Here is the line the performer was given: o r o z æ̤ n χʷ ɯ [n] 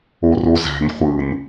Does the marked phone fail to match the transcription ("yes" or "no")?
no